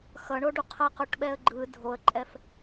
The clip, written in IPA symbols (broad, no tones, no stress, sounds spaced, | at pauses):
x ʌ ɳ o ɖ u qʰ ʌ q o ʈ ɓ ɛ ə̯ ɡ͡ǃ ɯ dʱ o ə̯ ǃʼ ɛ f